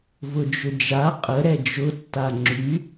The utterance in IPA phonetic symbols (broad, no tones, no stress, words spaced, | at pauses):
vʊd͡ʒʏd͡ʒa qʼə ɾɛd͡ʒʊ tːaŋ͡ǁy